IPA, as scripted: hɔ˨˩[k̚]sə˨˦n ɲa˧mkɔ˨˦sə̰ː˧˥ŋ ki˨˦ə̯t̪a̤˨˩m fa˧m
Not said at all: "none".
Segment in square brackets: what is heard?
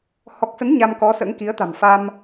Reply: k̚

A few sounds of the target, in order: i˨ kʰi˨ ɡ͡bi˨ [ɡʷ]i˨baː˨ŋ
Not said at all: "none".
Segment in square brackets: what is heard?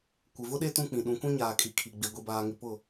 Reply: ɡʷ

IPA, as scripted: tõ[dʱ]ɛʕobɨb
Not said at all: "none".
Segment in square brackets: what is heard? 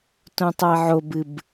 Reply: tˤ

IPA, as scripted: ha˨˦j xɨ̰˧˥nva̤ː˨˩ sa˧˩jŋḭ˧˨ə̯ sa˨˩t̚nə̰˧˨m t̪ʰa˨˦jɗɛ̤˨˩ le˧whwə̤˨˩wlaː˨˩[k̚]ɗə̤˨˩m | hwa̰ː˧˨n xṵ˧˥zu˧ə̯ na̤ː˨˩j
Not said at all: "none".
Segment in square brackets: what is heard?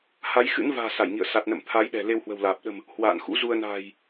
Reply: p̚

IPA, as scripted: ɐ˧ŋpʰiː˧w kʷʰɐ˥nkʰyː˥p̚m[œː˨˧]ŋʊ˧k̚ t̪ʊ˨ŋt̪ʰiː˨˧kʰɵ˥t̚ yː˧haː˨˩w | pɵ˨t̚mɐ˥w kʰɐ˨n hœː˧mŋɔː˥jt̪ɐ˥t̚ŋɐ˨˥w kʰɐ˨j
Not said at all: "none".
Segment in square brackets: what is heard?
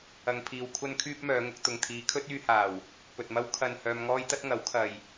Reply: œː˨˧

